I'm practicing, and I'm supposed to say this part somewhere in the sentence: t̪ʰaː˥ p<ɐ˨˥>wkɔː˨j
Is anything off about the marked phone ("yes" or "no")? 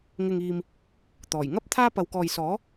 yes